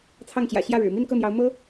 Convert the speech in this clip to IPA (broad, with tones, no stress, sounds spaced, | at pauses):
t͡sʰ ɑ˥˩ ŋ t͡ɕ j ä̰˨˩ ɕ j ä˥˩ ɻ ɻ̩˨˩ m i˥˧ n k ɤ˥˩ n̪ j ɑ˧˥ ʊ̯ m ɤ˥